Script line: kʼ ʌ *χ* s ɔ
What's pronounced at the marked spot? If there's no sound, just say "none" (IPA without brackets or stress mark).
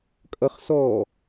χ